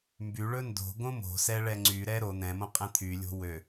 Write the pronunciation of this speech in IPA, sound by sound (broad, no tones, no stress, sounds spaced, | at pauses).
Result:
m b y ɭ ɵ n d o̤ ɡ õ m o̤ s ɛ ɭ ɛ ŋ͡ǀ y ɾ ɛ ɾ o n̪ ɛ̃ m õ qʼ ɛ̃ t̪ʰ y lʲ o̤ w ø